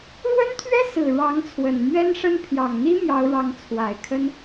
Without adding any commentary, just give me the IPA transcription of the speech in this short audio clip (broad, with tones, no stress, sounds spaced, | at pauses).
ɻ w ə˥ n t̪ʰ ɥ ɛ˥ s ɹ̩˨˩ ɻ ɑ˧˥ ŋ t͡sʰ w ə˨˩ n m ɥ ɛ˥ n ʂ ə˥ n pʰ j ɑ˨˩ ŋ n̪ i˥ m j ɑ˧˥ ʊ̯ ɻ ɑ˧˥ ŋ t͡sʰ w a˨˩ ɪ̯ kʰ ə˥ n